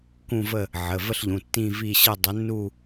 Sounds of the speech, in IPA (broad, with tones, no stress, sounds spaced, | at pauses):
k ũ˥˧ v ə˥˧ | ʕ ə˩˧˩ v ə˥˧ ɬ ʎ ũ˩˧˩ tː ĩ˥˧ v i˥˧ ɕ ə˥˧ dˤ ə˨˦ nː u˥˧